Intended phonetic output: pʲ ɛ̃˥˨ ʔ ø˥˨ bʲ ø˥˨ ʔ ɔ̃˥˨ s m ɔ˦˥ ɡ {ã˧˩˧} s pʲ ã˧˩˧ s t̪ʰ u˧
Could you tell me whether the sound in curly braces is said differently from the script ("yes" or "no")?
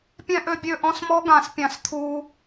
no